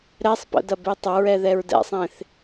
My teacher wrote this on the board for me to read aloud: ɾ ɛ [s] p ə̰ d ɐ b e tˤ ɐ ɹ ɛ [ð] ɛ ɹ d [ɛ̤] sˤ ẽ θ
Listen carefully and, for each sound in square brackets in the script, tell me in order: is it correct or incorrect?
incorrect: sˤ, correct, incorrect: ɛ̰

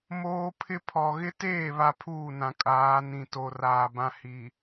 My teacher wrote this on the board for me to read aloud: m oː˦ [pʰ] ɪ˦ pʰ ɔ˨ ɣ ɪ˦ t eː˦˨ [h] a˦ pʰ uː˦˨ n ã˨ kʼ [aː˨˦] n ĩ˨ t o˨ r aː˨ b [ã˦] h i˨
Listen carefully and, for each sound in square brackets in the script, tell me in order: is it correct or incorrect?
correct, incorrect: β, correct, correct

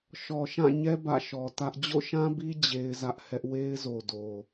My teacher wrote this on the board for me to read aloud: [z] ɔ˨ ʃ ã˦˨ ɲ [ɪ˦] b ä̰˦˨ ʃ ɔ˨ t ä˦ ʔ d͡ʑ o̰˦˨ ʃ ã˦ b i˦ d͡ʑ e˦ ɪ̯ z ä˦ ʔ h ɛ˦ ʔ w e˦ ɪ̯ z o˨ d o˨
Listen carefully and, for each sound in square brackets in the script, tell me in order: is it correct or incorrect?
incorrect: ʃ, incorrect: ɛ˦

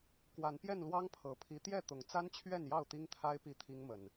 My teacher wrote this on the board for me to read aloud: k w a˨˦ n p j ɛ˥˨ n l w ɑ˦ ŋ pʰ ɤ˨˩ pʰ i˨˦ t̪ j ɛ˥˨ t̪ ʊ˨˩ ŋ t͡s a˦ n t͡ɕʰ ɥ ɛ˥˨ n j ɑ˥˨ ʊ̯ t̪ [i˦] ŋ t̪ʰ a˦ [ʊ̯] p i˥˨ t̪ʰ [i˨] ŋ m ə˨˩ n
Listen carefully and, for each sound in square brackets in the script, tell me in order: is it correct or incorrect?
correct, incorrect: ɪ̯, incorrect: i˦

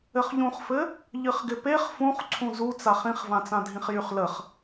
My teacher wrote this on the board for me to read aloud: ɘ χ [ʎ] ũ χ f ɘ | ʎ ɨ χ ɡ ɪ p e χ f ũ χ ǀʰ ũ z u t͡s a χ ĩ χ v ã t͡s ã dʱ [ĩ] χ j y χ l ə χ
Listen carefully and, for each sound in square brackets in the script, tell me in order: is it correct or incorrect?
correct, correct

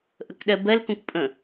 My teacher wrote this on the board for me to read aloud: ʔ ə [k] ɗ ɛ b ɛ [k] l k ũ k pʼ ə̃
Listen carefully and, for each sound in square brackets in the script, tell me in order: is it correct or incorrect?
correct, incorrect: none

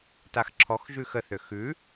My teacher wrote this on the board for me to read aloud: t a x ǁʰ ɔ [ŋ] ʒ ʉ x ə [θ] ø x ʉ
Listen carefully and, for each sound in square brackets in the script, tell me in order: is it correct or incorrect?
incorrect: x, correct

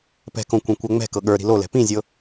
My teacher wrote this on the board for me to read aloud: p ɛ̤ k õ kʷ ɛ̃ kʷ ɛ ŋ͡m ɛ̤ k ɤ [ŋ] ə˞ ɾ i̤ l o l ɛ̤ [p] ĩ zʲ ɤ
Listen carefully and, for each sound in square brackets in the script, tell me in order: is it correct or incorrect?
incorrect: ɠ, correct

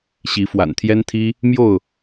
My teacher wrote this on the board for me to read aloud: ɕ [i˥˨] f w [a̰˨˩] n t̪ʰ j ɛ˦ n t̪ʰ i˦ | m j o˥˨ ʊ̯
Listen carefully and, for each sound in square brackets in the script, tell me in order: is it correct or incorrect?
incorrect: i˨˦, correct

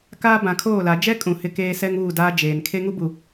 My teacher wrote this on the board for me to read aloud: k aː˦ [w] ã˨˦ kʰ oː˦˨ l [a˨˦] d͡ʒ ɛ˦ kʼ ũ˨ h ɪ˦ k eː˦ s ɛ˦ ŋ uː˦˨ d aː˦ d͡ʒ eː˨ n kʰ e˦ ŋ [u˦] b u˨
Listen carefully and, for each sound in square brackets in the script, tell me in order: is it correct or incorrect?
incorrect: b, correct, correct

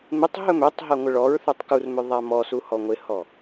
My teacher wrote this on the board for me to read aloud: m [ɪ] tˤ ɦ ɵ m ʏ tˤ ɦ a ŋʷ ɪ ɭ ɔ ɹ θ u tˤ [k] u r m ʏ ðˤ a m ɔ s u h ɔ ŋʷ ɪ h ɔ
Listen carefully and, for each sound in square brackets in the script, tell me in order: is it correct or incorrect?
correct, correct

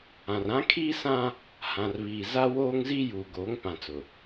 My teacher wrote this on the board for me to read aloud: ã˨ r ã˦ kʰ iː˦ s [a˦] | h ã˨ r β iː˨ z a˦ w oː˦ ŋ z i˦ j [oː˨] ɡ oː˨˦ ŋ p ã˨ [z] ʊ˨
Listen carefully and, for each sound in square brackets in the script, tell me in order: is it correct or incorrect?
incorrect: ã˦, incorrect: uː˨, incorrect: t͡s

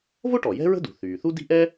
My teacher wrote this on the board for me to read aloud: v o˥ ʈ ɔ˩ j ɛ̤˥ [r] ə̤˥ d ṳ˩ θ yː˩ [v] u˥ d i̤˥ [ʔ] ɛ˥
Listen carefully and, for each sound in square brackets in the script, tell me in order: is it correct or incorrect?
incorrect: ɹ, incorrect: θ, correct

